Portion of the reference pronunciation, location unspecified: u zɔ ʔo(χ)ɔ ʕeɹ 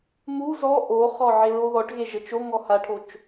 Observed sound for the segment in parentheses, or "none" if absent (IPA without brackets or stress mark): χ